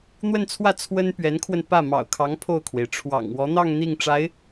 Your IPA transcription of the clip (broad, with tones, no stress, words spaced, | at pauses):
n̪wə˥˧nt͡sʰwä˥˩ t͡sʰwə˥npɥɛ˧˥nkʰwə˧n pä˥˩ mɑ̰˨˩ʊ̯kʰɑ˧˥ŋ pʰo˥˩ʊ̯kʰwe˩ɪ̯ ʈ͡ʂʰwɑ̰˨˩ŋwɔ˧˥n̪ɑ˥˧ŋ n̪i˥˩ŋʈ͡ʂa˧˥ɪ̯